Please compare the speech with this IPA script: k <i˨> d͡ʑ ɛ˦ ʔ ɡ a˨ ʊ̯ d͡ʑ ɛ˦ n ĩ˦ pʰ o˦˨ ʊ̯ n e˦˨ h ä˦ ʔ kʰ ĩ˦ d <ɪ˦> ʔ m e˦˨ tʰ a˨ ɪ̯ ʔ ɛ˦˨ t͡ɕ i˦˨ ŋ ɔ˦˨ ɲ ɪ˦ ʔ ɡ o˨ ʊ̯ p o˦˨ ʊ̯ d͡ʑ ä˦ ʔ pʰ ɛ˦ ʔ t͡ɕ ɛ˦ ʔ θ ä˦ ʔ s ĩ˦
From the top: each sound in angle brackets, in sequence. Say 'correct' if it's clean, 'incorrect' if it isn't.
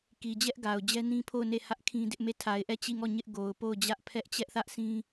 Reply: correct, correct

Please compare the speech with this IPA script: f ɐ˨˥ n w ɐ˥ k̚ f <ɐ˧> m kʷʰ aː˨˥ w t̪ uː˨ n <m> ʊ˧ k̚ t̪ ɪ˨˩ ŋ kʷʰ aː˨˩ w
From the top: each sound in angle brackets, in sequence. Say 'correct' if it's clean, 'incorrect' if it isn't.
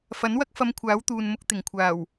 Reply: correct, correct

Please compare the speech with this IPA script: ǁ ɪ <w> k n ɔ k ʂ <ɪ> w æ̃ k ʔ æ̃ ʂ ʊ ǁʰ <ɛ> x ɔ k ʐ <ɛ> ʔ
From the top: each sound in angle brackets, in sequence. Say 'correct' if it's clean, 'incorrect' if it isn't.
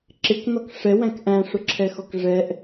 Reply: incorrect: none, incorrect: ɛ, correct, correct

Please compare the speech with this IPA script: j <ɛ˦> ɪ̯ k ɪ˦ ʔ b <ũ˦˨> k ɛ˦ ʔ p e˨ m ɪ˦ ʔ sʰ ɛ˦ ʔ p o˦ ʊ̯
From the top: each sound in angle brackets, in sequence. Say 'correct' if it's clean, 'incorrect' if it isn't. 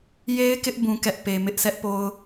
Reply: incorrect: e˦, incorrect: ũ˦

